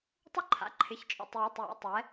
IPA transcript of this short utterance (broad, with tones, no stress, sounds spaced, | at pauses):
tˤ ʏ˦ ǃʰ a̰˩˧˩ ǃʰ ɪ˩˧˩ ç t͡ʃʼ ɔ̰˩˧˩ tˤ j i˩˧˩ tˤ j ɔ̰˩˧ tˤ ɛ˩˧